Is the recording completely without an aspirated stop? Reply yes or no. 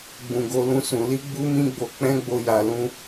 yes